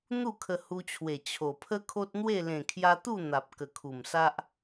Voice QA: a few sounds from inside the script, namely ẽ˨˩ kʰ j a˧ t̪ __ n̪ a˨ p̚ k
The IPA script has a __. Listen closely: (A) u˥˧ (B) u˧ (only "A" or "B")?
A